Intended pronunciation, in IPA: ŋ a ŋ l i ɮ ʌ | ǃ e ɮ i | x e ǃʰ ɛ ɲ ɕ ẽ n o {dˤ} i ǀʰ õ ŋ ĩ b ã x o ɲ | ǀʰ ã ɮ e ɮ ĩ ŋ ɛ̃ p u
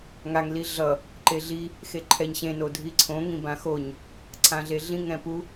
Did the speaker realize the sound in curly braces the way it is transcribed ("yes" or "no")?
no